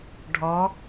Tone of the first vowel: rising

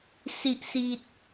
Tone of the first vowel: high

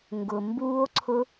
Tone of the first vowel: low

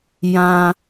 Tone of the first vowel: low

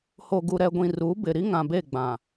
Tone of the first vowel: low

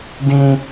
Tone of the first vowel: high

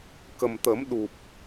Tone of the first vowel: low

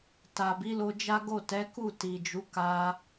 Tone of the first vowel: low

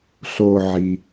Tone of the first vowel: low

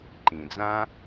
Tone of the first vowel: low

